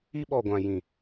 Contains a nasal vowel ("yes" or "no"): yes